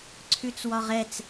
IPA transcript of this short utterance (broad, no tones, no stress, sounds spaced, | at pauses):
ǀʰ ʉ t͡s w ɒ ʁ ɛ t͡s